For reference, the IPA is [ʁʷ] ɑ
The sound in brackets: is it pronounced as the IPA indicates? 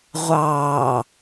yes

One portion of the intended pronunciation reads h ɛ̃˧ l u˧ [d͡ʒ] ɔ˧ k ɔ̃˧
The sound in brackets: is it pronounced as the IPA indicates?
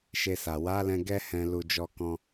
yes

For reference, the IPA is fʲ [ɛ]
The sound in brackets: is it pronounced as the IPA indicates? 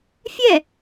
yes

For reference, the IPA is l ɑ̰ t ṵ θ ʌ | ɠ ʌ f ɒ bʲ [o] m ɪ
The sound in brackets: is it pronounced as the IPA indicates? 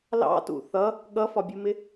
no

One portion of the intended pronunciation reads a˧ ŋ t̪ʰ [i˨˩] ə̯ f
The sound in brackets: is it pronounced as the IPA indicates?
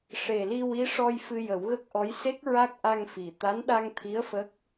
no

